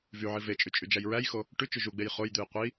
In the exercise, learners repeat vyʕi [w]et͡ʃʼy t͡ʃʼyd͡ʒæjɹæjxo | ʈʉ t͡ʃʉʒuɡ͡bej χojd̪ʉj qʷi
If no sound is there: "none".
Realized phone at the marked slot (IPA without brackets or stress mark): v